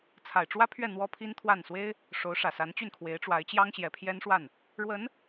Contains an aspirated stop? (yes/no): yes